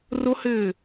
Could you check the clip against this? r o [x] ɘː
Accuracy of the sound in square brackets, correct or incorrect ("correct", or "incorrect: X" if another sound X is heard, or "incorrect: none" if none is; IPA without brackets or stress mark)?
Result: incorrect: h